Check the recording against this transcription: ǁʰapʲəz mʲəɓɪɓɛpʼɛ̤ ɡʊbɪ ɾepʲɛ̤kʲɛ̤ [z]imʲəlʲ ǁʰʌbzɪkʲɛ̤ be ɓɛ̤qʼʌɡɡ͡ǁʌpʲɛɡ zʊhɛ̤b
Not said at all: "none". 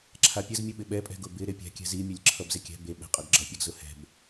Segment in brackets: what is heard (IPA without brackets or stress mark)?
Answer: z